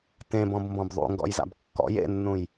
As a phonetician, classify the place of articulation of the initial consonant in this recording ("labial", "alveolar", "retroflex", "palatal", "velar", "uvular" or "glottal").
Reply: alveolar